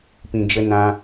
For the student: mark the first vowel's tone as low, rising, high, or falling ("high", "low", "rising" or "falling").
low